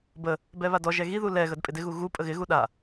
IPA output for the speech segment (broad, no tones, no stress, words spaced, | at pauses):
bə | bɛβadɔʒɛ ɣiðu lɛɣəd pʼɪdɪɣu ɣu pʼəɣɪɣu ɗa